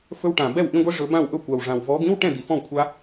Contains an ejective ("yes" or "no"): no